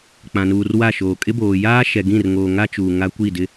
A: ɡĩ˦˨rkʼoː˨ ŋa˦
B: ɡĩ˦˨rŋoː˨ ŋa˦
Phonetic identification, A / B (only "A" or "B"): B